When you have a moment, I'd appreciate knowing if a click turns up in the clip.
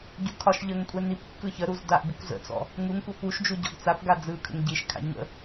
no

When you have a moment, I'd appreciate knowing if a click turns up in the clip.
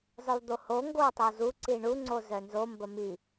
yes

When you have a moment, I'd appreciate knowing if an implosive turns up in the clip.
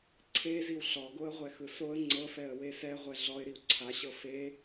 no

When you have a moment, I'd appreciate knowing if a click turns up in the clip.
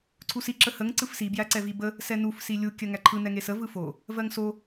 yes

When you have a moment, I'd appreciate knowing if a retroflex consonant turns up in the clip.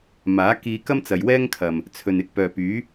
no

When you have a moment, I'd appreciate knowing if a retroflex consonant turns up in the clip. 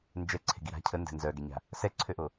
no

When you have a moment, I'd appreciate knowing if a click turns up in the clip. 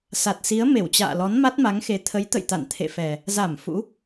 no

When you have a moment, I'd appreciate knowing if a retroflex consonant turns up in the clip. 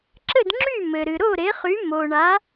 yes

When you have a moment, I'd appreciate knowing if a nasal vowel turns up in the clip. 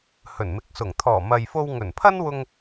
no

